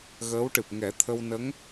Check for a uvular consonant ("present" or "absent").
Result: absent